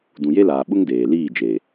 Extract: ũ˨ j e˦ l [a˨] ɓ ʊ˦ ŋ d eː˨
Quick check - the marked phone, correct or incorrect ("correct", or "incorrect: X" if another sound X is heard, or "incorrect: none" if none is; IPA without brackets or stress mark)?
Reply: incorrect: aː˨